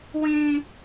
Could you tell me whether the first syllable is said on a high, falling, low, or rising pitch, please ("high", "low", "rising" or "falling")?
high